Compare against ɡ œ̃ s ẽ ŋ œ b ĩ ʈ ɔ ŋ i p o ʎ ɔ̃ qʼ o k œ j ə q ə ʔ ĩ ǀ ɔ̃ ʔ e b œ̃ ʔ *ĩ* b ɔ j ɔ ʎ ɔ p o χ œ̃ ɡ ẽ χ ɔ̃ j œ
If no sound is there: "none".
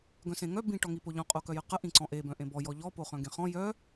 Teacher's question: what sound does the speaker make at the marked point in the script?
ẽ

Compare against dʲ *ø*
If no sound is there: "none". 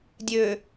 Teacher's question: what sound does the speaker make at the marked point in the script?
ø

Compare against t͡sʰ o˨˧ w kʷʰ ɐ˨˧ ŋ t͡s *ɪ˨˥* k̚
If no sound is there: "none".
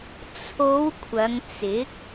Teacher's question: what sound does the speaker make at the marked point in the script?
ɪ˨˥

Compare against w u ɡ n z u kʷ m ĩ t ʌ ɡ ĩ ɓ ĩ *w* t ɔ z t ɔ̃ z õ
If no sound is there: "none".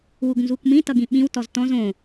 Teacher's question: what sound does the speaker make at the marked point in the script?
w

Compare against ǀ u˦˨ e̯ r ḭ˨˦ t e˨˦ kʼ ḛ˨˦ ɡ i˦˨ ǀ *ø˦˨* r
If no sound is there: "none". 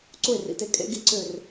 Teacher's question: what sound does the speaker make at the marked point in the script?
ø˦˨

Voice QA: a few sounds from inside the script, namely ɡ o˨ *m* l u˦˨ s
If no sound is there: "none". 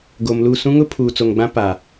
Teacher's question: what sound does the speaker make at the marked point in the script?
m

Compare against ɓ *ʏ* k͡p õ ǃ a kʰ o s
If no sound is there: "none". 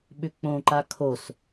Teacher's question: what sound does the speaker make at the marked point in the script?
ʏ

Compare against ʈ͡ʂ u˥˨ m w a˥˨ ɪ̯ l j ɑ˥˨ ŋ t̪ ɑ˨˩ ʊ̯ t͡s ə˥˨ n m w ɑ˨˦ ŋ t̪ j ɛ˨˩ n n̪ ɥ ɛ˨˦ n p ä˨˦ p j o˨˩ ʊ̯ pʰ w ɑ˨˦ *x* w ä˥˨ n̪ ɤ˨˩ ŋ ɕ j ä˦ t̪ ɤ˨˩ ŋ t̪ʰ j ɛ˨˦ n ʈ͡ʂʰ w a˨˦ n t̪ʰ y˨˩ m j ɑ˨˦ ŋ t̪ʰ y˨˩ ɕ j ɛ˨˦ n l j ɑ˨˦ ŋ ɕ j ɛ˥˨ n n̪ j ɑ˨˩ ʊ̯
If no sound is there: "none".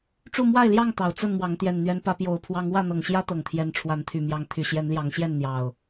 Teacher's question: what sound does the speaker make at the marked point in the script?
ŋ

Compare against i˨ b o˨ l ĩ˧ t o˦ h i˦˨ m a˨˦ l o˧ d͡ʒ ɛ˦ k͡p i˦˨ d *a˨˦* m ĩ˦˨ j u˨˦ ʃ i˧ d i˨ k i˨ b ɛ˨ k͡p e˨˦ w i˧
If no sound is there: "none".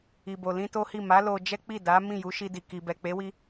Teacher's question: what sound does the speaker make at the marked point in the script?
a˨˦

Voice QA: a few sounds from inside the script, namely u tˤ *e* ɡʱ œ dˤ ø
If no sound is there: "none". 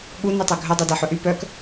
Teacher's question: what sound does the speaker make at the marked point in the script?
ø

